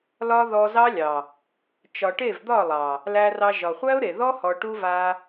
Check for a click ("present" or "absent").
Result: absent